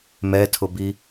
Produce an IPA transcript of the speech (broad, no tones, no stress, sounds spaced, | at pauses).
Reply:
m ɛ tʰ ʊ b i